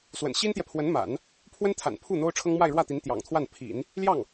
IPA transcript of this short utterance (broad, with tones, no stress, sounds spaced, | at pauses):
s w ə̰˨˩ n ɕ i˥ n t̪ j ɛ˨ pʰ w ə˧˥ n m a̰˨˩˦ n | pʰ w ə˥ n t̪ʰ a̰˨˩ n pʰ u˥˩ n̪ o˥ ʊ̯ ʈ͡ʂʰ ɤ˥ ŋ m w a˥˧ ɪ̯ ɻ w ä˥˩ t̪ i˧˥ n t̪ j ɑ̰˨˩ ŋ t̪ʰ w a˥˩ n pʰ ḭ˨˩˦ n | l j ɑ˥˩ ŋ